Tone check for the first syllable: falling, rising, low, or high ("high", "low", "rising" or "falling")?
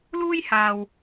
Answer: high